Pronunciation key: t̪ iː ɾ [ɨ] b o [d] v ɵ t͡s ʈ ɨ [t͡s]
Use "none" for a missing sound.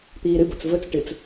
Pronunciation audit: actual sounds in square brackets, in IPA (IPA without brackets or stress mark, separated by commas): ɨ, t͡s, t͡s